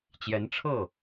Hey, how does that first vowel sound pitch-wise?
rising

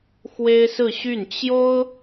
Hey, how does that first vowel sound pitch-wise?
high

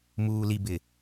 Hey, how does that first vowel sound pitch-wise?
low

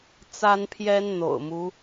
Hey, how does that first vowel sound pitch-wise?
high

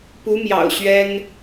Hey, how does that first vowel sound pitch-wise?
rising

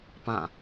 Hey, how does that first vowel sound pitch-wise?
falling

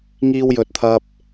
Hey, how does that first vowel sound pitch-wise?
low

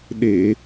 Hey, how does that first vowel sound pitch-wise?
low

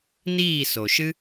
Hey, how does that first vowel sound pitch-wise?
falling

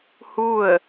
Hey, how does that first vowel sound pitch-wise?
falling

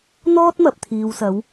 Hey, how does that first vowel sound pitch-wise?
high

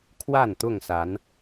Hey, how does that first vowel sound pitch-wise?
falling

